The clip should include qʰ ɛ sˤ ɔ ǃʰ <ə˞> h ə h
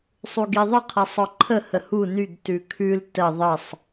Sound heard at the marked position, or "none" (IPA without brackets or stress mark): ə